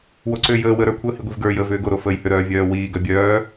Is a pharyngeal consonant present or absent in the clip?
absent